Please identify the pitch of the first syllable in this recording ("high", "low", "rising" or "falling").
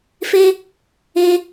high